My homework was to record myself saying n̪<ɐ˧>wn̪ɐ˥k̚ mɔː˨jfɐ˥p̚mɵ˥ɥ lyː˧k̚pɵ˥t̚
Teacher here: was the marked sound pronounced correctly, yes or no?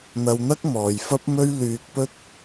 yes